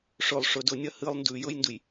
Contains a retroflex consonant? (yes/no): yes